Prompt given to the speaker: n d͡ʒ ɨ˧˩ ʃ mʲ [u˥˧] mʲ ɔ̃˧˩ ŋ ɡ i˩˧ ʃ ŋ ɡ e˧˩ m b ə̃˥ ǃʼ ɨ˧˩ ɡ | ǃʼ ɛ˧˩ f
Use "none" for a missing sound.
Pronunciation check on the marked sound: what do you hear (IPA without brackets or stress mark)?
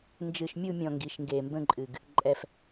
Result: u˥˧